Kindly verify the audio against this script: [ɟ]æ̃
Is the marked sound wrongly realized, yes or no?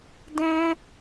yes